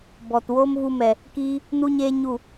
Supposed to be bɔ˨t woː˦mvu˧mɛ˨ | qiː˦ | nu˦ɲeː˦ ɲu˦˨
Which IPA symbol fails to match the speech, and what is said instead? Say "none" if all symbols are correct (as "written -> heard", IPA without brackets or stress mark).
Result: q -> k